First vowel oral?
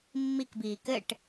yes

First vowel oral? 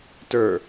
yes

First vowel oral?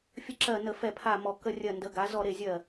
yes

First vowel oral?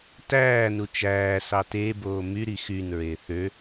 yes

